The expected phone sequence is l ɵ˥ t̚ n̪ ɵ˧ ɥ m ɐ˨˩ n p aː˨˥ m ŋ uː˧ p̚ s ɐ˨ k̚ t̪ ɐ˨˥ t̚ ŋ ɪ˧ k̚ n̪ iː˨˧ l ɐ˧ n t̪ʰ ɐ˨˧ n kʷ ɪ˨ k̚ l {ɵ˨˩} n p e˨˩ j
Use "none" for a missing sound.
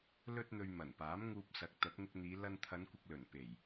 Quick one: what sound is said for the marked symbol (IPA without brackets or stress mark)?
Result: ɵ˨˩